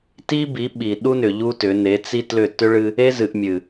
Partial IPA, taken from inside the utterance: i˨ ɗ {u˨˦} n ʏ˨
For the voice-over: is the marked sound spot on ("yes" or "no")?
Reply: no